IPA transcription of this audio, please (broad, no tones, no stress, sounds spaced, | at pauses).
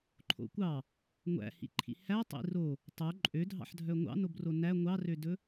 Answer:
ǃʰ o̰ kʷ ɑ | ŋʷ æ̰ h ḭ ǃʰ ḭ h æ tˤ ḭ r o | tˤ o ǃʼ ø dʱ ɑ̰ ħ dʱ œ ŋʷ ɑ̰ n o b r o n æ ŋʷ ɑ r ø d ɵ